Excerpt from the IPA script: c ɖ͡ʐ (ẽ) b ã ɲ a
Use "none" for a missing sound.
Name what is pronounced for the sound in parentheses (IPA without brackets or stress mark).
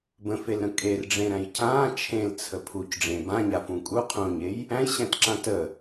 ẽ